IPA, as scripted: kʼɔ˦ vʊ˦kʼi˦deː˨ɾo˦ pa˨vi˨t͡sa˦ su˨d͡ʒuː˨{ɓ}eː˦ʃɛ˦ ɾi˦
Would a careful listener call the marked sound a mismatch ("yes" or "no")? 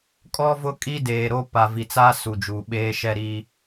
no